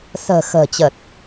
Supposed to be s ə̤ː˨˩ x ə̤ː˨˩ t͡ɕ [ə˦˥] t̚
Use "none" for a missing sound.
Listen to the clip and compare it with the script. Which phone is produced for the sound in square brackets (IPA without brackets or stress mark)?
ə˨˩